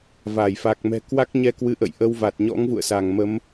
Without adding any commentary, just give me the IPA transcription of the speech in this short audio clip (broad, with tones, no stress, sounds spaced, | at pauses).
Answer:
v a˧˩ j f a˨˩ k̚ m ɛ̤˨˩ k w a˦˥ k̚ ɲ ɛ˧ k w ɨ˨˦ ʔ ə̰˧˨ j ʔ ə˧ w v a˨˩ t̚ ɲ ɔ̰˧˥ ŋ v ṵ˧˨ ə̯ s a˧˩ ŋ m ə˨˦ m